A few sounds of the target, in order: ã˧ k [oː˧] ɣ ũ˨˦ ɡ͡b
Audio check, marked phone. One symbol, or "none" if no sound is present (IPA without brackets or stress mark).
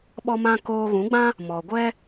oː˧